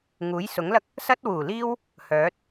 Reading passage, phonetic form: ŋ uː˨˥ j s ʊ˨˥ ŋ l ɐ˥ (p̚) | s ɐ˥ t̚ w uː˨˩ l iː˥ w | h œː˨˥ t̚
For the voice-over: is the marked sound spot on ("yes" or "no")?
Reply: no